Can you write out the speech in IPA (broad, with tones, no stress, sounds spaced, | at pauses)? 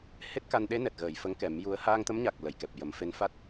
h e˦˥ t̚ k a˧ n ɗ e˧˥ n ɛ˨˩ t̚ ɣ əː˨˩˨ j f ə˧˥ ŋ k ɛ˨˩˦ m j u˧˥ ə̯ h aː˧ ŋ t̪ ə˧˥ m ɲ a˨˩ k̚ l ə˨˩˨ j k ɛ˨˩ p̚ j ə˨˩˦ m f e˧˥ n f a˦˥ t̚